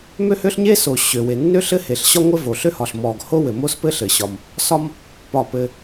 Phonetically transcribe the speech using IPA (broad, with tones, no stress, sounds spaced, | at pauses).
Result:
m ø˥ h ø˥ ɬ ɲ e˥ s o˩ ɕ ø˩ w e˩ nː ø˥ ɬ ɘ˥ h e˩ ɬ ɕ ɒ˥ ŋʷ ɘ˥ v o˩ ɬ ø˥ h ɒ˩ ɬ m ɔ˩ ɡ h o˥ w ɘ˩ m o˥ s p ɘ˥ ɬ ɘ˩ ɕ ɒ˩ m | s ɒ˥ m | p ɒ˩ p ɘ˩